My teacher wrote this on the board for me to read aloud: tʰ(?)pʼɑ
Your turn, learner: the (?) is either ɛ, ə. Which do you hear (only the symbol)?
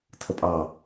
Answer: ə